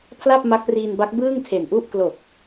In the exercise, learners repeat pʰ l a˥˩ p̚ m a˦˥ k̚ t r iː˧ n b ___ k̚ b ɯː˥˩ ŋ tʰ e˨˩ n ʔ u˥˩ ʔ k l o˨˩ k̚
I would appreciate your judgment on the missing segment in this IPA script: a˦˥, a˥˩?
a˦˥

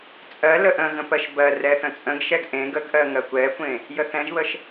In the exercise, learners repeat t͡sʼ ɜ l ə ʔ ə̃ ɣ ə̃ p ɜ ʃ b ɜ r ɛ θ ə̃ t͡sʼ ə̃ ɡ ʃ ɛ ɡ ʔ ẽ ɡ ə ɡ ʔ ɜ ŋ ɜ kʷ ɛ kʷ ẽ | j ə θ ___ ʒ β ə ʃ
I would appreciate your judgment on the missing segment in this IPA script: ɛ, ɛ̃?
ɛ̃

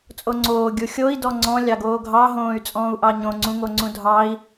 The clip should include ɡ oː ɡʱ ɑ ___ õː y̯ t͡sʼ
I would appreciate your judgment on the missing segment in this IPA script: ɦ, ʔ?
ɦ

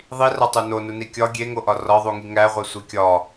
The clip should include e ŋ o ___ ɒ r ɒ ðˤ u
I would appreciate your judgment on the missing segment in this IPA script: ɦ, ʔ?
ʔ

